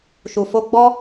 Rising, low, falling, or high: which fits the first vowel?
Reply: low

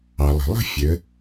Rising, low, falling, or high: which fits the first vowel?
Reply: low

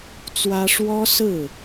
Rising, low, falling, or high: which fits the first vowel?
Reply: high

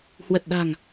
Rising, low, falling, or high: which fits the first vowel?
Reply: low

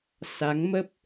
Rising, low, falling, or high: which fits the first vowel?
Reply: rising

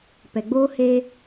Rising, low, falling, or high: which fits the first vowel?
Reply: low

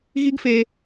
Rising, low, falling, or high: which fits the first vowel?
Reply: high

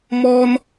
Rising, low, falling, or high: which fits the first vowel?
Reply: high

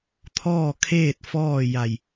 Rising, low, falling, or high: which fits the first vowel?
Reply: falling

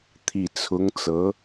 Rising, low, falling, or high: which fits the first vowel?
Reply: low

